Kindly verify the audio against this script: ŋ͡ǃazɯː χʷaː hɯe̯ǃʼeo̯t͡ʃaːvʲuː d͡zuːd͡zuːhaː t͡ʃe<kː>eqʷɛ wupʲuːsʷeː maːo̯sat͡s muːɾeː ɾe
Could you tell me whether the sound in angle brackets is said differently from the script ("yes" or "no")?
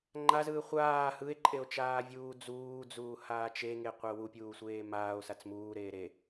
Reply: yes